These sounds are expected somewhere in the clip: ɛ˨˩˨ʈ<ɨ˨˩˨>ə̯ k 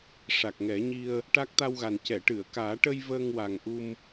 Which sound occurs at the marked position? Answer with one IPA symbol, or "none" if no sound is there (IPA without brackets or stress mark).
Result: ɨ˨˩˨